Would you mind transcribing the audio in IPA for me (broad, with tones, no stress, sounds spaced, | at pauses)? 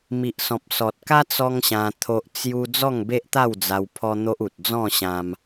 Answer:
m i˨ ʔ s ɔ̃˨ p̚ s ɔ˨ t̚ k a˦ t͡s ɔ˦ ŋ ɕ ã˧ t̪ʰ o˦ ʔ t͡s j u˦ d͡z ɔ˥˧ ŋ b e˦ ʔ t̪ a˥˧ w d͡z a˧ w pʰ ɔ˦ n̪ o˦ ʔ u˨ t̚ d͡z ɔ̃˥˧ ɕ ã˧ m